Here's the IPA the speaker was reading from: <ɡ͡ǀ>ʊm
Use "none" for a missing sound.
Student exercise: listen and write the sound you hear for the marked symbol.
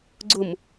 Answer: ɡ͡ǀ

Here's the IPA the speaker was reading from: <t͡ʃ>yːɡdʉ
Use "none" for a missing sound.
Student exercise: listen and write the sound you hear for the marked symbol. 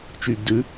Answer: t͡ʃ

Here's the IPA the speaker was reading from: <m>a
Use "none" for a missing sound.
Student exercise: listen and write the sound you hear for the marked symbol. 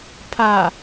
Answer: pʰ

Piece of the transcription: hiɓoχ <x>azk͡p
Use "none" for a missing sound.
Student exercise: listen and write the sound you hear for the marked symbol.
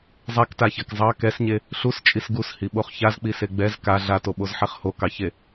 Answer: ç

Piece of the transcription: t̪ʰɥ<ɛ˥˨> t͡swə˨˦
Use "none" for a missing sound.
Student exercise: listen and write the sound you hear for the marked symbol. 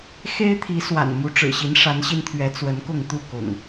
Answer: ɛ˨˦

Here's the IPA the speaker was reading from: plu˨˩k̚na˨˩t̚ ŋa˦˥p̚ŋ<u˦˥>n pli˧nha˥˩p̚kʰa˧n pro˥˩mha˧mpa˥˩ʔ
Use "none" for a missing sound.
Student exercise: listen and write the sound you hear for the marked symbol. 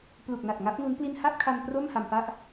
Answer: u˦˥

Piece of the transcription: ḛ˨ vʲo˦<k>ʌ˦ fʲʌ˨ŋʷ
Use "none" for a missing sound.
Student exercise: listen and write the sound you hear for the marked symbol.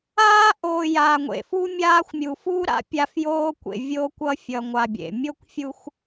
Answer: kʷ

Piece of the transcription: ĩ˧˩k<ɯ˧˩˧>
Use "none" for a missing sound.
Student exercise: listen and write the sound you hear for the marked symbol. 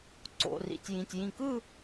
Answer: ɯ˥˧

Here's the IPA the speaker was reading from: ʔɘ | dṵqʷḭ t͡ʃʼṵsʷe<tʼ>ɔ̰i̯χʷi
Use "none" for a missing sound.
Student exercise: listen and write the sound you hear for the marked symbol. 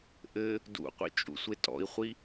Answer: tʼ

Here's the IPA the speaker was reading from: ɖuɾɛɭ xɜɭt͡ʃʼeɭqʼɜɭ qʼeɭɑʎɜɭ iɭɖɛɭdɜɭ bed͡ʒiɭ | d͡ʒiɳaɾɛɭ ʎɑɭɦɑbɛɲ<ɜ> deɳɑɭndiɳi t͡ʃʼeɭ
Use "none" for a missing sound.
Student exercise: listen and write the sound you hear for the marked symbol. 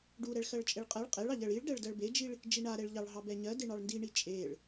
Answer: ɜ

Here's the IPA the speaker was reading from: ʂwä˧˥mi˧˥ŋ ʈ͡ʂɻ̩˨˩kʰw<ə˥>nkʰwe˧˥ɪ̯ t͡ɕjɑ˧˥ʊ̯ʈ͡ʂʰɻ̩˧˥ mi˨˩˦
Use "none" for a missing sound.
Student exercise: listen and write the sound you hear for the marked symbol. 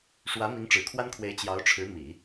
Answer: a˥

